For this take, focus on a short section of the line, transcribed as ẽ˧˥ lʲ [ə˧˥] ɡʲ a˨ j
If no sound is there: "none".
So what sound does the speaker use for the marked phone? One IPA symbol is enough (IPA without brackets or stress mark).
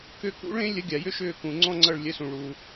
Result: ə˧˥